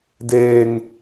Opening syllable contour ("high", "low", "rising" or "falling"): high